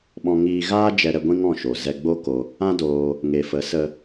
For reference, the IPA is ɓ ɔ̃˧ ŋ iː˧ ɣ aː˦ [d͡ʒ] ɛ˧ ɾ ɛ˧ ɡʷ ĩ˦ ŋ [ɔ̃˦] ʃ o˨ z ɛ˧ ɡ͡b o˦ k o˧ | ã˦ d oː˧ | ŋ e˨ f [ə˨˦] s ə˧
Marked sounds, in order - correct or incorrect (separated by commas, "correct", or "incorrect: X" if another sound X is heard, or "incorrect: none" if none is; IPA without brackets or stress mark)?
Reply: correct, incorrect: ɔ̃˦˨, correct